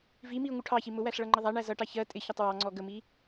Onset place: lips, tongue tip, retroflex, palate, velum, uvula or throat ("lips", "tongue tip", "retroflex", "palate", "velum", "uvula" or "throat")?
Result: lips